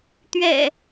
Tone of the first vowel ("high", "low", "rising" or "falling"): low